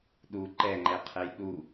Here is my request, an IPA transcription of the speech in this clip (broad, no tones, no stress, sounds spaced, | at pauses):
ɗ u ǃ ɛ ŋ͡ǃ ɛ qʰ ɛ j ɗ u